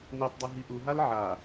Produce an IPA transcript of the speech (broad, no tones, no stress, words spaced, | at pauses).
netˤdˤe ɦiʔuɦal ʕa